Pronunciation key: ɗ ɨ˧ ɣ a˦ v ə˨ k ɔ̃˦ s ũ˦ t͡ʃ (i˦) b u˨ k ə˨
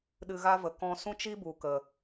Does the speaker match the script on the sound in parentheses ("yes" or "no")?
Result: yes